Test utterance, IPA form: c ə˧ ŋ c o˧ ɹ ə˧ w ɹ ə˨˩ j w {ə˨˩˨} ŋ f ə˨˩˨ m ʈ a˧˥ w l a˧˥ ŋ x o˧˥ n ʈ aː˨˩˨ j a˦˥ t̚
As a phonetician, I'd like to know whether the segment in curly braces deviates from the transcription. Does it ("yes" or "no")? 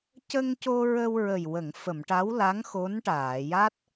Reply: no